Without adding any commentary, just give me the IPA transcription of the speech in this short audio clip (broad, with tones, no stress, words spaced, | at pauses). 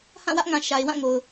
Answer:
hã˦˨wä˦ʔŋã˨ ʃa˨ɪ̯wã˦˨ŋo˨ʊ̯